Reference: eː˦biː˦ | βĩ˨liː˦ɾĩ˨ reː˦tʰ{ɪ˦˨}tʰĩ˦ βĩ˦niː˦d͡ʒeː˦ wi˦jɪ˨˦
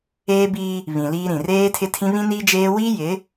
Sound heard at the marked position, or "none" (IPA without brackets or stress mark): ɪ˦